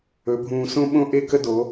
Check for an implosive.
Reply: present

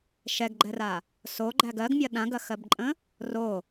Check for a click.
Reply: present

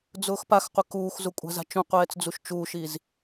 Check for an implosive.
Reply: absent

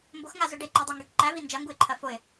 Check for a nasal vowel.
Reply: absent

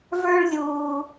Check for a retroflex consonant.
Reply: present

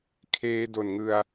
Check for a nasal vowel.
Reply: absent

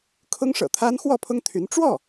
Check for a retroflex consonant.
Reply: present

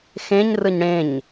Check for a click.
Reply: absent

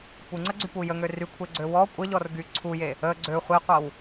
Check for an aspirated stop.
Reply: present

